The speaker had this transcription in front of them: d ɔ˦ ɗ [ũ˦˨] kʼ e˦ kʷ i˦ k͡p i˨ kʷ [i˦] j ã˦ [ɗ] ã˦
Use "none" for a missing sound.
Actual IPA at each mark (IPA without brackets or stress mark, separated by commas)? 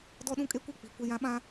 ũ˦, e˦, ɓ